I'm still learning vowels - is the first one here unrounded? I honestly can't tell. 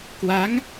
yes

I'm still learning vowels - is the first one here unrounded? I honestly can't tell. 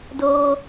no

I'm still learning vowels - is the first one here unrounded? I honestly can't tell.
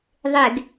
yes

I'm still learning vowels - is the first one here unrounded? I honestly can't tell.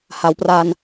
yes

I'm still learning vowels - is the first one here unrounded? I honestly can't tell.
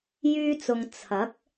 no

